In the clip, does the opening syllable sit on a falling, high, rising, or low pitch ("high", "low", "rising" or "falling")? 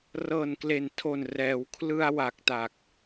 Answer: low